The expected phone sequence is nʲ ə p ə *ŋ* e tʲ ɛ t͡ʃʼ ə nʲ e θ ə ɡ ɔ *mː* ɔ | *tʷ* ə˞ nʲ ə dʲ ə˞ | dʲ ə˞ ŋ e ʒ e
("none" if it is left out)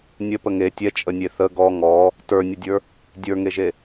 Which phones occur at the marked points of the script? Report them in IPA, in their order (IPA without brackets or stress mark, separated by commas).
ŋ, ŋ, t